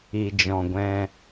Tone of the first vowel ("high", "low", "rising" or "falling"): low